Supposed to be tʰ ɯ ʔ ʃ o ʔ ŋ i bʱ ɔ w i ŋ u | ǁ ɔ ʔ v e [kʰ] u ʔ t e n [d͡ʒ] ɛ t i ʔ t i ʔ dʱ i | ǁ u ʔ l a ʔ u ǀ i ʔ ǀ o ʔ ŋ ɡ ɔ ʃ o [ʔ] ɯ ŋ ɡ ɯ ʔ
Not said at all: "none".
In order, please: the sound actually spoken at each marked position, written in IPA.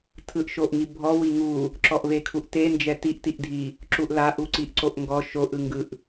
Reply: kʰ, d͡ʒ, ʔ

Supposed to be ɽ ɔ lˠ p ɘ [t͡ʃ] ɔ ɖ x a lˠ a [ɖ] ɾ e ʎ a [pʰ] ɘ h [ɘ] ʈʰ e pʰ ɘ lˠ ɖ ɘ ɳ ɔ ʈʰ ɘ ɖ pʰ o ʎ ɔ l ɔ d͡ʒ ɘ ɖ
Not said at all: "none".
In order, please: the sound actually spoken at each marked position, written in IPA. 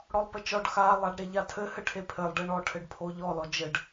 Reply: t͡ʃ, ɖ, tʰ, ɘ

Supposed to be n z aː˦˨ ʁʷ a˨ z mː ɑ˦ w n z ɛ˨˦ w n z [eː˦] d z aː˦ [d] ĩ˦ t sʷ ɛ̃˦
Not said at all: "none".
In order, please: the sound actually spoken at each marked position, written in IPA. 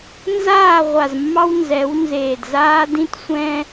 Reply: eː˨, d

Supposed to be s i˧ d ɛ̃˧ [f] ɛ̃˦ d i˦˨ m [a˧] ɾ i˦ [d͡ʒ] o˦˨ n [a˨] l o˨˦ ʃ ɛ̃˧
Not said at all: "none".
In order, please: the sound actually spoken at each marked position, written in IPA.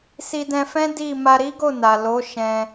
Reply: f, a˧, ɡ, a˨

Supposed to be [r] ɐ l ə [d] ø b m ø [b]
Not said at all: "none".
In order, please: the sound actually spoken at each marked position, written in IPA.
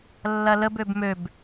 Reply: lː, b, b

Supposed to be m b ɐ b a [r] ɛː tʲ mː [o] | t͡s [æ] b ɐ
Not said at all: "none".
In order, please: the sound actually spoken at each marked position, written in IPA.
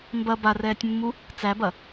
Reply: r, u, æ

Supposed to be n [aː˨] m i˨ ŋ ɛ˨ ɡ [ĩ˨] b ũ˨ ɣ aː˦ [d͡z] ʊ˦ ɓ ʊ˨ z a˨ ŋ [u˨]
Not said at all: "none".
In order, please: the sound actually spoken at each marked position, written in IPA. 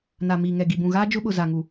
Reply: a˨, i˨, d͡ʒ, u˨

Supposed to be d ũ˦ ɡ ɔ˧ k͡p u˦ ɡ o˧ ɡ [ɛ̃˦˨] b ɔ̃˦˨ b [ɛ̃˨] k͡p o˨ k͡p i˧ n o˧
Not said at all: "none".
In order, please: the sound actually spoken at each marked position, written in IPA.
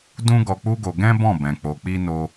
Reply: ɛ̃˦, ɛ̃˨

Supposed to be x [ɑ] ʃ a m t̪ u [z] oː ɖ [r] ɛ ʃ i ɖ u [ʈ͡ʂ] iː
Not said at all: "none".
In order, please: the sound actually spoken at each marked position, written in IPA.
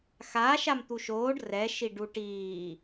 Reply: a, ʃ, r, ʈ

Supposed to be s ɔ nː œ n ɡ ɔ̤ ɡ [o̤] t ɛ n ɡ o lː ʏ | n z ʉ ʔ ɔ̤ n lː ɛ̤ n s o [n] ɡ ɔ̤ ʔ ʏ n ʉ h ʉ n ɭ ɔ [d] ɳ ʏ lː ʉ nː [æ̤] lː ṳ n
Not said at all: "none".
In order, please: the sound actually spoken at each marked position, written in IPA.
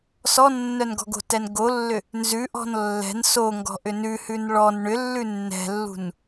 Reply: o̤, ŋ, n, ɛ̤

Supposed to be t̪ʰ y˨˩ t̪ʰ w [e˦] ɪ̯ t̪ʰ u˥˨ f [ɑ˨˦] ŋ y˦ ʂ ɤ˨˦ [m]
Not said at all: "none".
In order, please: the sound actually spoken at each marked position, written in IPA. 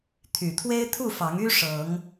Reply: e˦, ɑ˨˦, ŋ

